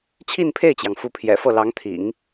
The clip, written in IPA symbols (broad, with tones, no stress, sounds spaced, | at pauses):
t͡ɕʰ i˥˧ n pʰ e˥˩ ɪ̯ t͡ɕ j ɑ˩ ŋ f u˧˥ pʰ j ɛ̰˨˩ f ɤ˥˩ l ɑ˧˥ ŋ t̪ʰ ḭ˨˩˦ ŋ